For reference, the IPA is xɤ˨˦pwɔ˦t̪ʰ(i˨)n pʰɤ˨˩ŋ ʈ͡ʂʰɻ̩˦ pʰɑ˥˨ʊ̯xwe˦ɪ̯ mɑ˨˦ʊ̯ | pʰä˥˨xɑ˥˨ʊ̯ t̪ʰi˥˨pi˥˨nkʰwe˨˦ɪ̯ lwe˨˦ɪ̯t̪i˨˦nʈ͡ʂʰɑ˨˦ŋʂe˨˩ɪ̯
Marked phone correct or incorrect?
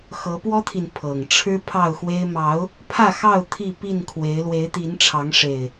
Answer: correct